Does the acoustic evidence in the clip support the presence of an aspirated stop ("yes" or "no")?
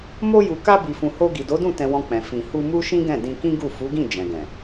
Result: no